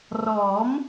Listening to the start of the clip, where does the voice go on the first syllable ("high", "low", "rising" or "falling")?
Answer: rising